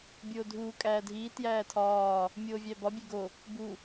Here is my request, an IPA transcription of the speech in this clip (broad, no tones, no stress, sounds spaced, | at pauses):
bʲ oː dʱ uː kʼ æː dʱ iː t j æː tʰ ɒː | mʲ oː vʲ æ b ɒ bʲ e ɡ o | b u